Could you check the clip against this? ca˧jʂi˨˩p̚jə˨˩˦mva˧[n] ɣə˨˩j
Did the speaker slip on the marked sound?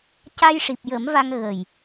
yes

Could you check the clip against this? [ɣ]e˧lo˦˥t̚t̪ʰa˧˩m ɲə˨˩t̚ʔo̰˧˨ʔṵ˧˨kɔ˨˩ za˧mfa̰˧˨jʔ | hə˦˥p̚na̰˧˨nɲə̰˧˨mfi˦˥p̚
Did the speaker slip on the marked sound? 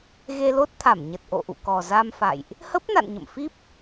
no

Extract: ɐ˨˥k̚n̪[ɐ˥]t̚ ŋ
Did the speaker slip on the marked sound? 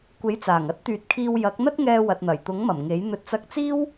no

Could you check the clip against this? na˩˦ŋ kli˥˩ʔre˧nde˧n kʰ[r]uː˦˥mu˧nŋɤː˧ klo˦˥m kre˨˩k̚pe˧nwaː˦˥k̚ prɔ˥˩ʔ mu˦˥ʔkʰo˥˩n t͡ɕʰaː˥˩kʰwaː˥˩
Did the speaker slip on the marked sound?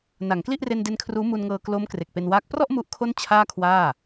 no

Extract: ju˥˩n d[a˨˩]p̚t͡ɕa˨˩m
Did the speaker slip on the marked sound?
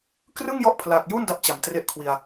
yes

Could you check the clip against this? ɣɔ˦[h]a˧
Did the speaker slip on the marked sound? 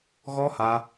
no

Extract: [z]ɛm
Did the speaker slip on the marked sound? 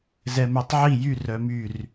no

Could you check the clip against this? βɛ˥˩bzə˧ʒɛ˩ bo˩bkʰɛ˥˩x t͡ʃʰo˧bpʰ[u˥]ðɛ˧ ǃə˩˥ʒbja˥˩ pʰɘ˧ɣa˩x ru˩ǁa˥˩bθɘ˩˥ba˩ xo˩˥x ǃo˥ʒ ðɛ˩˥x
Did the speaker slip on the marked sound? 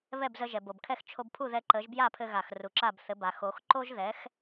yes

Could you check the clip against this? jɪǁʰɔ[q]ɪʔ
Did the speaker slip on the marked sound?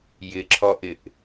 yes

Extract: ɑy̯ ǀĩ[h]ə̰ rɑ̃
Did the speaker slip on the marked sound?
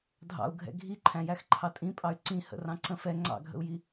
no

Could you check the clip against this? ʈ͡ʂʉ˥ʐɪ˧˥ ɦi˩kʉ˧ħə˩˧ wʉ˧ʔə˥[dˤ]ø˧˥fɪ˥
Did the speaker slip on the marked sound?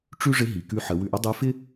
no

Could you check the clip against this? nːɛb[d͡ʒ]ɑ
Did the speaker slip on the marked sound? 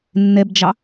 no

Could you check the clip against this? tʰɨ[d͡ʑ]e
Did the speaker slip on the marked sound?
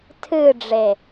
yes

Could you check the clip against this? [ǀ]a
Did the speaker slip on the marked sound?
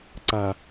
no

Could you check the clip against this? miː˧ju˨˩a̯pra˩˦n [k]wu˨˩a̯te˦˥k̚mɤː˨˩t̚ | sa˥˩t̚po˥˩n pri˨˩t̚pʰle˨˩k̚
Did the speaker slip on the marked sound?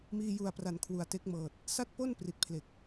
yes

